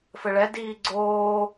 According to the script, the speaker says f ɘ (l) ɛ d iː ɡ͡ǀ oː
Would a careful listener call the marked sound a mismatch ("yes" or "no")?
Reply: yes